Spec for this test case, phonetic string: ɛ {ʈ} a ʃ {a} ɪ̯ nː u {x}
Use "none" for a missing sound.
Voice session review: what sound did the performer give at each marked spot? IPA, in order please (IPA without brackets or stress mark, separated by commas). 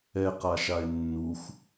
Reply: q, a, x